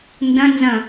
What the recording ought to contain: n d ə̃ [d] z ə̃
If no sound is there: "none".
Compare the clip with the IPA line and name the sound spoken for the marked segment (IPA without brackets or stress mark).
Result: n